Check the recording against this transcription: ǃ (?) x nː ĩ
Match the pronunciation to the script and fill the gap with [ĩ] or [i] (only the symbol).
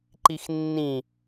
i